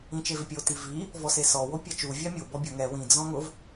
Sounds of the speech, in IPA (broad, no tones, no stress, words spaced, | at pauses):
ĩt͡ʃevɪpʲo tivi | vɔsesɔ wopʲat͡ʃu vʲamʲo bɔbʲʊ ŋɛ wĩ d͡zɔ̃ŋʊv